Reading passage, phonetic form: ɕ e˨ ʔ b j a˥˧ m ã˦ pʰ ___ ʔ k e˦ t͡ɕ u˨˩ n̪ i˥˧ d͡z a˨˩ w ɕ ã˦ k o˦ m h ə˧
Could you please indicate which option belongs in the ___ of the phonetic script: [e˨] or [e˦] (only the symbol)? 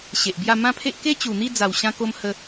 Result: e˦